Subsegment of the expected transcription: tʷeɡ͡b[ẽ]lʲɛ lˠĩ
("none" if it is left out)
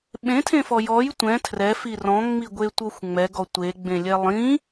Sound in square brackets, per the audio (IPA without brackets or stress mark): ẽ